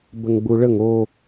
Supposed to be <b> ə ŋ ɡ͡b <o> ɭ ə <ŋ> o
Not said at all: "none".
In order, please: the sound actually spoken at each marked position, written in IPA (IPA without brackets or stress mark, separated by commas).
b, u, ŋ